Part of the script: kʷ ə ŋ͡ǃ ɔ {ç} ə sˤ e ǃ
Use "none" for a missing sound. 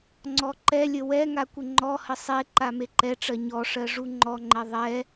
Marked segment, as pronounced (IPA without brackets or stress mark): h